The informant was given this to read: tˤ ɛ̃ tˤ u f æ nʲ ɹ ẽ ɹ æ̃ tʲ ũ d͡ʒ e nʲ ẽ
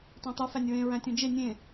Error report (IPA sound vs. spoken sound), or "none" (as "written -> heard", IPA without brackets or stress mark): ɛ̃ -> æ̃